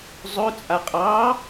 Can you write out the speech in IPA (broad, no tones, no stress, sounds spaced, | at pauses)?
zˤ ɵ t͡sʼ a qʼ ɑ